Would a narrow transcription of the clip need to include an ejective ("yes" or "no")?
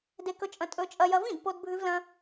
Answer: yes